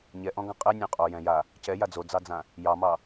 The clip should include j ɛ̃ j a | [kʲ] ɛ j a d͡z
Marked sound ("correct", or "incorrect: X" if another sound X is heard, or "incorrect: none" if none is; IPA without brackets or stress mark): incorrect: c